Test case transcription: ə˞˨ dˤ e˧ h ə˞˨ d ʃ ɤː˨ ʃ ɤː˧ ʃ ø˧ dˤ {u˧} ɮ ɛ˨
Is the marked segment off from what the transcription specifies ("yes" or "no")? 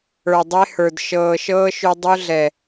no